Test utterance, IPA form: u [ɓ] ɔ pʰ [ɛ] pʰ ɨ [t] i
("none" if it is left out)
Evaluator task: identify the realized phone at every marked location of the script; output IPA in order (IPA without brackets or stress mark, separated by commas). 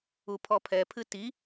pʰ, ɛ, t